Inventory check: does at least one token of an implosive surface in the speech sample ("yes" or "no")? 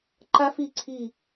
no